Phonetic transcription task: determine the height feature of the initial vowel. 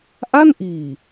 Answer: low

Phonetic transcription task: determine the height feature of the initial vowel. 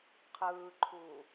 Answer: high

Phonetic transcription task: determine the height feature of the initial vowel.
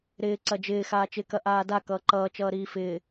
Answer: high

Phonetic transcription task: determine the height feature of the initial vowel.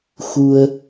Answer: high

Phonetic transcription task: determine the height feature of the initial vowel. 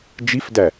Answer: high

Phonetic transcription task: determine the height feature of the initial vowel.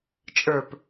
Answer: mid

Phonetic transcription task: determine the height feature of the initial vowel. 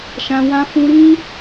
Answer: low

